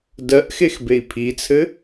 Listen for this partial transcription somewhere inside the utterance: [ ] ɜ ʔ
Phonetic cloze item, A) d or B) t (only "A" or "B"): A